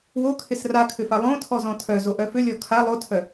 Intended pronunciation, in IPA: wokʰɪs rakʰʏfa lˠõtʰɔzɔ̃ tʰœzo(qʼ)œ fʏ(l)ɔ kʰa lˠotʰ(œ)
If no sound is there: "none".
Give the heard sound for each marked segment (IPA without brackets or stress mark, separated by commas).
ʔ, lʲ, œ